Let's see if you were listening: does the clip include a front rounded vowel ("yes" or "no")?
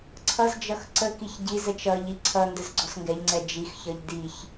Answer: no